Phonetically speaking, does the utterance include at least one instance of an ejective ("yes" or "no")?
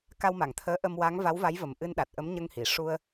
no